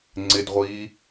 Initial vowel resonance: oral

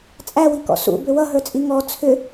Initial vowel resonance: oral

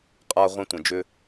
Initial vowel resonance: oral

